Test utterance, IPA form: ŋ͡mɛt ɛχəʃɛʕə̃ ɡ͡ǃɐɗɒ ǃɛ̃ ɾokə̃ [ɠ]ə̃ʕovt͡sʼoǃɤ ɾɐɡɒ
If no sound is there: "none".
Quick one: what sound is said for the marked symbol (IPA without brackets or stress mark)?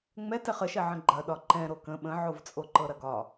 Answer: ɓ